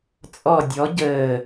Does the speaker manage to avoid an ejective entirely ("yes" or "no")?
no